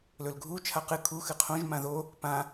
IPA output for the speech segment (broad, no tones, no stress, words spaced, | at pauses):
lɵlɡʱu t͡ʃʰaqɨ kʰu xɨqʰõʒ mãðo | pã